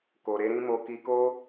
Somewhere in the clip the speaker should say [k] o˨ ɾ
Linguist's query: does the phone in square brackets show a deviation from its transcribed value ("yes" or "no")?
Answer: no